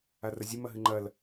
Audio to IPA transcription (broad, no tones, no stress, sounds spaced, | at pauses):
a r ɐ zʲ ɨ m ɐ ɦ ɨ ŋ͡ǃ ɐ l